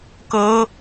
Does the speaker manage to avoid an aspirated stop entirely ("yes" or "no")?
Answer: yes